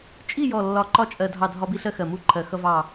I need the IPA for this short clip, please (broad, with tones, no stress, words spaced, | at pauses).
t͡ʃʼi˦˨jɔ˨˩lːɒ˨˩ ǃɒ˦˨t͡ʃʼɜ˨˩ dʱɑ˦˨dʱɒ˦bi˦ɬɜ˦ xɜ˨˩mu˦˨ǃʰɜ˨˩ xʌ˦vɑ˦˨